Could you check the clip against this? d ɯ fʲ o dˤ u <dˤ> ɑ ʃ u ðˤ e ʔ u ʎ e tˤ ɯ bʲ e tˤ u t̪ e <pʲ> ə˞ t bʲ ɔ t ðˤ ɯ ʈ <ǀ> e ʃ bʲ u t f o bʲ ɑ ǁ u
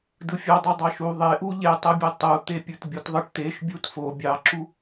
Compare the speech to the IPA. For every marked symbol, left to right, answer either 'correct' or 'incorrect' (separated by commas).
correct, correct, incorrect